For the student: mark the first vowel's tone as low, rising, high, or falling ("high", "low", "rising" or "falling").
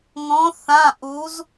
rising